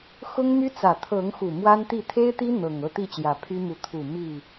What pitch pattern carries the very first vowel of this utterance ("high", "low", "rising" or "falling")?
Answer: high